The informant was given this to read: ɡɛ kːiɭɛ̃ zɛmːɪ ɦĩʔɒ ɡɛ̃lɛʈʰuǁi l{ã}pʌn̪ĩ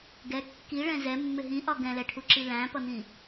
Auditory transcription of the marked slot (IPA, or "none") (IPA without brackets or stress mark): æ̃